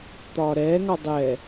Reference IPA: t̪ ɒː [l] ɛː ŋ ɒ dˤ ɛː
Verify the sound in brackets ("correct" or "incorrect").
incorrect